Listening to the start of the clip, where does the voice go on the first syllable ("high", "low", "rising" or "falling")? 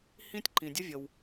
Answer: high